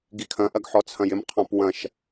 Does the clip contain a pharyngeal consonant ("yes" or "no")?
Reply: yes